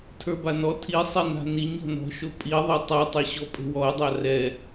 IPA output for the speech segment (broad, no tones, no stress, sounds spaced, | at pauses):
tʰ ə˞ b a n ɔ tʰ i sˤ e n a̤ n i ɲ ɔ̤ n ɔ̤ ʃ o pʼ i ðˤ ə˞ tˤ a tˤ ə˞ ɕ ɔ pʼ e̤ w ɔ ə̯ dˤ a r ɛ